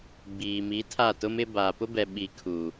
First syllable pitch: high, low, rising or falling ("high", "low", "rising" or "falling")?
low